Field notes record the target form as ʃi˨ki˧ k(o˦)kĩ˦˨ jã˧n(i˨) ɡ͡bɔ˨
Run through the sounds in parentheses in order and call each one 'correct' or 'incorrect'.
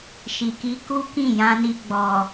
incorrect, incorrect

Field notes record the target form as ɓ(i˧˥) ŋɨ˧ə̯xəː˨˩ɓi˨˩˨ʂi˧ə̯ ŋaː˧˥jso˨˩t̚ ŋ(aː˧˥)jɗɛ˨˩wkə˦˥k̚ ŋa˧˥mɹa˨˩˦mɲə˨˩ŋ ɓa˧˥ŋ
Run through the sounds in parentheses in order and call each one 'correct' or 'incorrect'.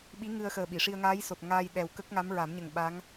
correct, incorrect

